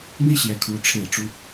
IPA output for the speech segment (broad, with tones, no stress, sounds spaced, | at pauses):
n̪ i˥ ɕ j ɛ˧˥ kʰ u˧˥ ʈ͡ʂʰ e˥˩ ɪ̯ ʈ͡ʂ u˥